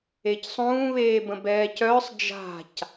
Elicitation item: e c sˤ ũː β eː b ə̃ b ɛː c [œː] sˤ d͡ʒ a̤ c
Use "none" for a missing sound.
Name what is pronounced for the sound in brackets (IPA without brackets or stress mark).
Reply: œː